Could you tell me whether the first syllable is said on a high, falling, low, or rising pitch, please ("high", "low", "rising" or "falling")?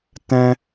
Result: high